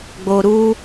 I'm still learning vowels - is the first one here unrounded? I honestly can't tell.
no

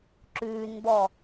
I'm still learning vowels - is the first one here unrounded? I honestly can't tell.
no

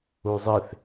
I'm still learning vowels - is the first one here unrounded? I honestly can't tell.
no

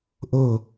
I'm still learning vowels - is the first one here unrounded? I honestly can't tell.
no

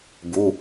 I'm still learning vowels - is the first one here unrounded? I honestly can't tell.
no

